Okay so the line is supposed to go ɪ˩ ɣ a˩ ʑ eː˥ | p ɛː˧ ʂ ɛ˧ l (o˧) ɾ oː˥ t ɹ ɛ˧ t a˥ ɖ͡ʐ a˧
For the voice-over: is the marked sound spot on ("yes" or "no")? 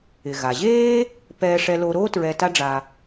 yes